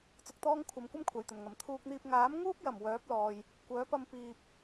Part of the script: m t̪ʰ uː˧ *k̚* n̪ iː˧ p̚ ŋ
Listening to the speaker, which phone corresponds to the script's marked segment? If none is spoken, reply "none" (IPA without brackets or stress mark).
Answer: k̚